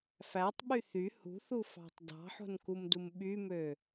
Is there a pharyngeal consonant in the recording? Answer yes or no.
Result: yes